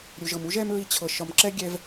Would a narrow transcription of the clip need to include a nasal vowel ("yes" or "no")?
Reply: no